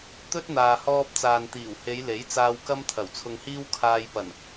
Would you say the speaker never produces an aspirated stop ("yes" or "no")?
no